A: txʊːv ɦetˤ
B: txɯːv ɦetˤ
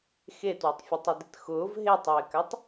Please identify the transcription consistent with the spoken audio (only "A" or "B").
A